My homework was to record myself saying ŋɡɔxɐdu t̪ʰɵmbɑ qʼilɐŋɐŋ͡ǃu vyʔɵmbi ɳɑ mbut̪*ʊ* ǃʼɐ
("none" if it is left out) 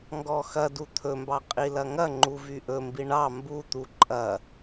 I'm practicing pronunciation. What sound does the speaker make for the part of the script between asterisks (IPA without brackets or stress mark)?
u